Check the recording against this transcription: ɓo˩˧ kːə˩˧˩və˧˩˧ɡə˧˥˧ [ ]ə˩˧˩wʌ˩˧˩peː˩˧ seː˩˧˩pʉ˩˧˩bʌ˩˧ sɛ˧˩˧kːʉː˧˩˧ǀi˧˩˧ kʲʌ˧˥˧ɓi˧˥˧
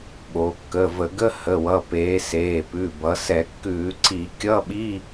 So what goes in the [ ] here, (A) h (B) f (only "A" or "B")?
A